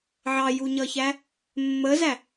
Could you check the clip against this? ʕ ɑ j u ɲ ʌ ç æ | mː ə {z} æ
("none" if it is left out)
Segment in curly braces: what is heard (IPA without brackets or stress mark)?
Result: z